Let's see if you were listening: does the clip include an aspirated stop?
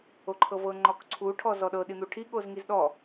yes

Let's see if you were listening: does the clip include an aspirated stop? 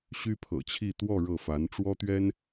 yes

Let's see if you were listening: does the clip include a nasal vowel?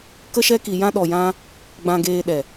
yes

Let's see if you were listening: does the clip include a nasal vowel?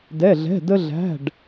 no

